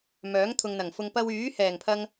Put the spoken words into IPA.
m œː˨˥ ŋ t̪ʰ ʊ˨ ŋ n̪ ɐ˨˩ ŋ f ʊ˨ ŋ p ɐ˧ w yː˨˥ h ɛː˨˩ ŋ pʰ ɐ˧ ŋ

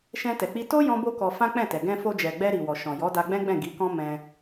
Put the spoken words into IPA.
ʃ ɛ̃˧ t ɛ˨ k͡p i˧ t o˦ j ɔ̃˦ b o˦ k ɔ˧ f ã˦ k͡p ɛ̃˦˨ t ɛ˨ ɡ ɛ̃˧ f o˧ d͡ʒ ɛ˨ ɡ͡b ɛ˧ ɾ i˨ w ɔ˨ ʃ ɔ̃˨ j ɔ˨˦ d a˧ ɡ͡b ɛ̃˦ ɡ͡b ɛ̃˦˨ ɡ i˨˦ k ɔ̃˦ m ɛ̃˧

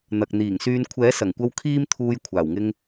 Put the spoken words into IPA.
n̪ ɐ˨ k̚ n̪ iː˨˩ ŋ s yː˧ n kʷʰ ɛː˨˥ s ɐ˨˩ ŋ kʷ ɐ˧ w kʰ iː˥ m t̪ʰ uː˧ j kʷʰ aː˨˩ w ŋ ɪ˧ ŋ

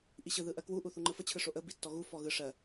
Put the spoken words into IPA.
ʔ i ɕ ɯ ð ɯ ʔ ɜ k w u ʔ u θ u ŋ͡ǃ ɯ f ə t͡ɕʰ ɯ ʂ o ʔ ə b i tː ɔ ɣ u f ɔ ɣ ɯ ʂ ɜ

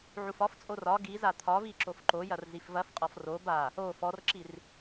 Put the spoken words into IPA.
ʕ u f ɒ f t͡sʼ o r ɒ ɡ i z a t̪ʰ ɒ v i ǁ o f ǃ o j ɐ r z i f v ɐ f qʼ ɔ f r o b a | o f ɔ r ǁ i r

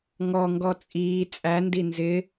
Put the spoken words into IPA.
ŋ ɔ ŋ ɡ ɔ t͡sʼ iː t͡sʼ æ n d i n z ɪ

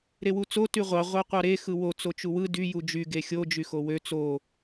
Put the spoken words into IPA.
ɾ e w u t͡s o t y ʁʷ ɑ ʁʷ ɑ qʷ ɑ ɾ e x ɯ w o t͡s o t͡ʃ u w ɯ d y j u d͡ʒ y ɡ e xʲ o d͡ʒ y x o w ø t͡s o

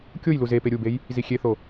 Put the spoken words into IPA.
kʲ o j l u z e p e ɾʲ u b e j | z i xʲ e θ o

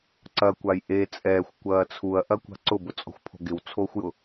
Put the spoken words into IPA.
ǀ ɐ kʷ a j ʔ e t͡sʼ ɛː xʷ kʷ ɐː t͡sʰ u ɐ̯ ʔ ɐ kʷ a̤ ǀ ʊ b ʊ t͡sʼ ɔ̤ xʷ pʰ o̤ ɡ ɪ w t͡sʰ oː xʷ j ʊ

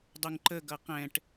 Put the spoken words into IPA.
dˤ ʊ ŋ ǃ ə ɡ ʌ q ɛ̃ ʈ

